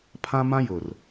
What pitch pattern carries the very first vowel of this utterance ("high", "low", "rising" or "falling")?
high